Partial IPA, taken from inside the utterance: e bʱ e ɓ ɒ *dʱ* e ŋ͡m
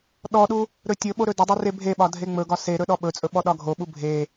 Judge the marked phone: correct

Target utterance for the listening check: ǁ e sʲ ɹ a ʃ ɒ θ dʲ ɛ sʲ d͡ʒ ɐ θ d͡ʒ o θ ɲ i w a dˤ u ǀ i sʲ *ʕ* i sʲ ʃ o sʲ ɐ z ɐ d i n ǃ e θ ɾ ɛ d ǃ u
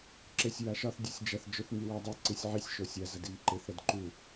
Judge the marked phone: correct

